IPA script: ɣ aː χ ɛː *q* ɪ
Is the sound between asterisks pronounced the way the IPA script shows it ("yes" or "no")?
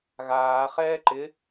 no